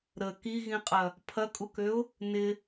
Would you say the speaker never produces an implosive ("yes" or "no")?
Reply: yes